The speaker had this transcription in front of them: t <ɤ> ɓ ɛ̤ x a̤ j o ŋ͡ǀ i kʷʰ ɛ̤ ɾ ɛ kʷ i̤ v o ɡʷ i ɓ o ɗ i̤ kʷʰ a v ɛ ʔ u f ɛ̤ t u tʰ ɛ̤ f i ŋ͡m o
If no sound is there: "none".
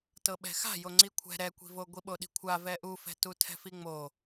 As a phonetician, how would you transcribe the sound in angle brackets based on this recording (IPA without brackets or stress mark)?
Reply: ɤ